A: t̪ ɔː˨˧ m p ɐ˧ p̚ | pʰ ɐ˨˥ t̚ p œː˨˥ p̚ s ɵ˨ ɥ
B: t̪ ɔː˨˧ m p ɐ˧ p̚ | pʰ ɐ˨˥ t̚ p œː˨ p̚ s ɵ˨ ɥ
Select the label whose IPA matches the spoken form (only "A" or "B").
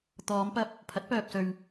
B